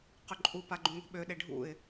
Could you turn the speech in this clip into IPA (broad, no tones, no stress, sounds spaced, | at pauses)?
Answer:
q ʏ ǃʼ u p a ɡ͡ǃ ũ ŋʷ e̤ ɓ ø ɗ e ɖʱ ṵ ɪ̯